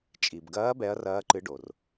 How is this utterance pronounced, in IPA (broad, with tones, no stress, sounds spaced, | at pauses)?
t͡ʃʼ i˩ b ɡ ɐː˨˦ b ɛ˨˦ ɐ̯ r ɐː˨˦ ǃ ɨ˨˦ ɖ o˩ r